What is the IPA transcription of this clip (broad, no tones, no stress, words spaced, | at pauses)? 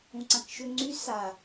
ũǀãkʃʏ ŋ͡ǀy sa